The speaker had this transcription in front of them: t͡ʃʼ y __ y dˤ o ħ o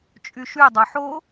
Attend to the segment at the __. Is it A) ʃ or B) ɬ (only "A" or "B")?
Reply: A